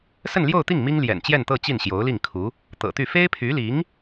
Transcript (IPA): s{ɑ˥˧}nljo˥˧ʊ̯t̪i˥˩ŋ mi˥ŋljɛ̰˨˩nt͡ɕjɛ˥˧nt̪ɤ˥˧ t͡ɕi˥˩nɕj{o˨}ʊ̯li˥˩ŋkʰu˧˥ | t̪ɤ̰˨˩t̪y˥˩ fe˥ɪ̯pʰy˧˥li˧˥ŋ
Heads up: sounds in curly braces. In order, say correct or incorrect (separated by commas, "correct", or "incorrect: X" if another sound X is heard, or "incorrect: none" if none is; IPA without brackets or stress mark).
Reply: incorrect: ə˥˧, incorrect: o˧˥